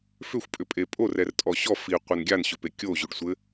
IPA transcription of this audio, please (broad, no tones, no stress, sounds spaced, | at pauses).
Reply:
f ʏ xʷ pʼ ʏ pʼ e pʼ o r ɛ r tʼ ɔ ɕ ɔ f i qʷ e n ɡʲ a n ɕ ʏ p e kʲ o ʑ ʉ ɖ sʷ ɘ